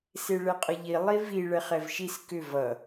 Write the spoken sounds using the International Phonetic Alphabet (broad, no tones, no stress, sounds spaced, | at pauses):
s e ɭ ɛ qʼ ʌ ʎ i lˠ i v i ɭ ɛ χ ɛ v ʃ i s k ʏ v ʌ